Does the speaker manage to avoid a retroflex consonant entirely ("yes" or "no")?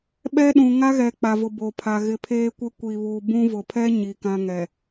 yes